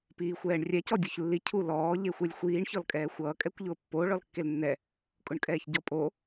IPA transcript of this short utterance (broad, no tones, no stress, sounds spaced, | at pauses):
p iː xʷ ɛː ɳ rʲ ɛ c ɔ dʲ o ç lː i cʰ u l ɔː ʎ e xʷ e lʲ xʷ iː ɳ ç ɔ l kʼ ɛː xʷ ʌː kʼ ɛ kʷ ʎ ʊː pː o ɭ ɔ l kː e l nː ɛ | kʼ ʊ ɳ kʼ ɛː ç ɟ ɔ pʼ o